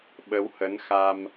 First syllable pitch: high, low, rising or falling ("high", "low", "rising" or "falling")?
rising